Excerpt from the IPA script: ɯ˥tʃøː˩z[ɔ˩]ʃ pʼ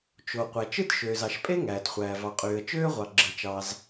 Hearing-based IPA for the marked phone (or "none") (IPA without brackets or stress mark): ɑ˩